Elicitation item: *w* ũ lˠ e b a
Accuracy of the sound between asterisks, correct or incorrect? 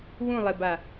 correct